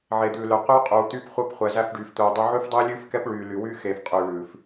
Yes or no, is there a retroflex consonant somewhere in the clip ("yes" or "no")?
yes